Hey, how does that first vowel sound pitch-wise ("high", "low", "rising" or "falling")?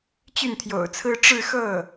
falling